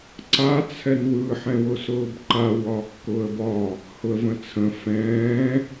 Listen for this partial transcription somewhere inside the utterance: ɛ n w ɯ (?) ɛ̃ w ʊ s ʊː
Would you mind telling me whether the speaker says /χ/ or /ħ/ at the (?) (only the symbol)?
ħ